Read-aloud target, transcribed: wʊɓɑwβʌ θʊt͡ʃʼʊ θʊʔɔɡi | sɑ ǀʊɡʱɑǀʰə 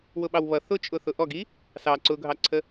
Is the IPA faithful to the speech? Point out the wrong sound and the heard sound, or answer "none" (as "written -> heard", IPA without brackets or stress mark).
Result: none